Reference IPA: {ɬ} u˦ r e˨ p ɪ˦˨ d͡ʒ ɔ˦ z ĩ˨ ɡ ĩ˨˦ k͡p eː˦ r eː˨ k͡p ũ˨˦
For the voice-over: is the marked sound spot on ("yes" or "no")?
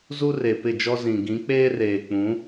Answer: no